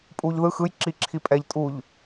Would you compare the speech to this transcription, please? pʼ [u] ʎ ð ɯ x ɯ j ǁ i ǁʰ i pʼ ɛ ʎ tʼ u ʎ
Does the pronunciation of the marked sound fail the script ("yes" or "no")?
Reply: no